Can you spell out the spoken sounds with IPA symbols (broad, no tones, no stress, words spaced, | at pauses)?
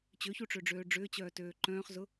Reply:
t͡ɕøçuʈ͡ʂøɖ͡ʐøː ɖ͡ʐʏːt͡ɕœːtøː ǃœ̃ːχzʊ